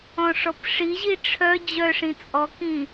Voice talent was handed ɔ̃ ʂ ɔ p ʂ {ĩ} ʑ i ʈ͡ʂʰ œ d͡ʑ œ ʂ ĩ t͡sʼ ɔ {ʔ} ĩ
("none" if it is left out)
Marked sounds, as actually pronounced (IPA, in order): i, k

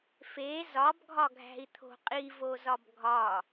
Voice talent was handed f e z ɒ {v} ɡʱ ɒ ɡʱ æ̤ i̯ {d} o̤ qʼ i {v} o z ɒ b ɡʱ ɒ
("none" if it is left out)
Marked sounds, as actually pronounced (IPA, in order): b, t̪ʰ, v

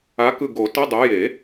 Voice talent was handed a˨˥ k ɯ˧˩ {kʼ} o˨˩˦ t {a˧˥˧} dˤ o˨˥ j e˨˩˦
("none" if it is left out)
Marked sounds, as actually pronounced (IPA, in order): ɡ, ʌ˧˥˧

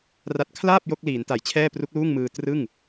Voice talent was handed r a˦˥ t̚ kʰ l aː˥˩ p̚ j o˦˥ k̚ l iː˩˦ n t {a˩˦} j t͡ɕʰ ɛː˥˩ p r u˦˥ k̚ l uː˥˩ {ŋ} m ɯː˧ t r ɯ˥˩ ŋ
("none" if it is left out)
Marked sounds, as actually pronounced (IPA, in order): a˩˦, ŋ

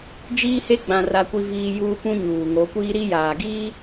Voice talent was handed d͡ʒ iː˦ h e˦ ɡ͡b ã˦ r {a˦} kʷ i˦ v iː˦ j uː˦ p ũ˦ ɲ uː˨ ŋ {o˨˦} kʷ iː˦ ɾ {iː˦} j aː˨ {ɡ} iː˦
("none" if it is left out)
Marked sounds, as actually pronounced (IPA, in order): a˦, o˨˦, i˦, ɡ

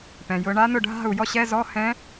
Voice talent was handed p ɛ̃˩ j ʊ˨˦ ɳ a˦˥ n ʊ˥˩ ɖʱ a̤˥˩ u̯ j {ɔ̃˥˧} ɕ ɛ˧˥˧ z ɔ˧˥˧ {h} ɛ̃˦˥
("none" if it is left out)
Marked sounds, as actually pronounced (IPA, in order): ɔ˥˧, h

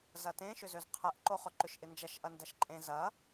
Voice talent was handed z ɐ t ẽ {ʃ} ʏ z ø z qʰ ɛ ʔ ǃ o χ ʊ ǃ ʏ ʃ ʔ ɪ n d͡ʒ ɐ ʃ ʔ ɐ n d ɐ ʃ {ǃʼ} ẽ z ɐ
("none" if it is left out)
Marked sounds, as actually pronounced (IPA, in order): ʃ, ǃʼ

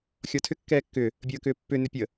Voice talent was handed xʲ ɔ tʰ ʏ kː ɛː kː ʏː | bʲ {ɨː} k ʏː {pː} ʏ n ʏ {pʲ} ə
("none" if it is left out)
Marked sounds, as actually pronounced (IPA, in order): əː, pː, pʲ

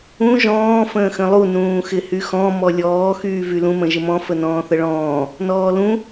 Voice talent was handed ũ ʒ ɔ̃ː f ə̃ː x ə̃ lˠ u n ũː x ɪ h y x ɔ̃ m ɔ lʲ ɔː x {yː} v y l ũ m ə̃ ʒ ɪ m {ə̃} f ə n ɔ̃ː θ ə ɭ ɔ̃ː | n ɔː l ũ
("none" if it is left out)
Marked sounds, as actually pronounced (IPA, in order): yː, ɔ̃

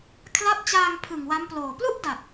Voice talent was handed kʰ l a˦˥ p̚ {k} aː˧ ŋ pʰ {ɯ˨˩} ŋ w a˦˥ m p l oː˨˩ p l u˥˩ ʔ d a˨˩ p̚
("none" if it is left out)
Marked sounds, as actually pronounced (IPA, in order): t͡ɕ, ɯ˨˩

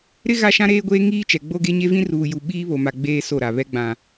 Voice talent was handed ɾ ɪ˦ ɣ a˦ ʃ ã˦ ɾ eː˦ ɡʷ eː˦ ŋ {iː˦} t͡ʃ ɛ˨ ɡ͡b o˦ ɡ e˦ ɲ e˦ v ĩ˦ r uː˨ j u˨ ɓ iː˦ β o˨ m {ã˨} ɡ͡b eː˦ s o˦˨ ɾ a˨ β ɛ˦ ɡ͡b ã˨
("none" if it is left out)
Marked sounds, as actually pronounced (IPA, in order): iː˦, a˨

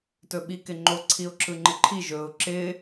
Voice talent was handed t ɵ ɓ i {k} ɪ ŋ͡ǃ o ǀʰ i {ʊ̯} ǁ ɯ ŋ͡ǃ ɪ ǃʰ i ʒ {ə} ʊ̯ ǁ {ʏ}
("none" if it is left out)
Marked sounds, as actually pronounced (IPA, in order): k, ʊ̯, ɵ, ɪ

